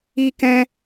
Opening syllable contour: high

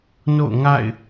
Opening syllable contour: falling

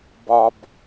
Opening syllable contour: low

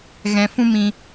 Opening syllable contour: low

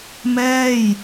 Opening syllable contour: falling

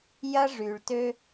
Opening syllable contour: high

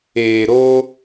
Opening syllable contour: low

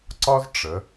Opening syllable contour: high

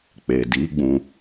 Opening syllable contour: low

